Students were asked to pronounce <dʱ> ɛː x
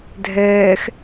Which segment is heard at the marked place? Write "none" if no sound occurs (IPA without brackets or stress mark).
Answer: dʱ